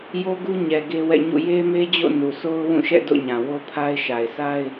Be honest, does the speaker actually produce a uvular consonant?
no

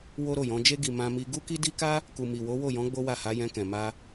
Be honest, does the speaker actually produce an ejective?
no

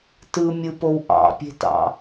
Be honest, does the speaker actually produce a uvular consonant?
no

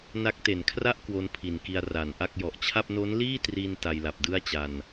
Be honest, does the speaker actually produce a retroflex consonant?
no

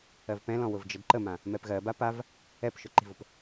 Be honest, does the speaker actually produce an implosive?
no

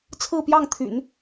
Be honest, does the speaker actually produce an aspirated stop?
yes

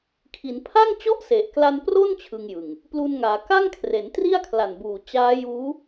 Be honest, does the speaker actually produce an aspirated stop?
yes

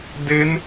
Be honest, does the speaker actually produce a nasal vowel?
no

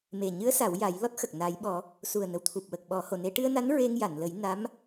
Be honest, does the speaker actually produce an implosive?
yes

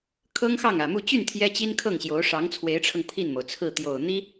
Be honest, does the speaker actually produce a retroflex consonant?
yes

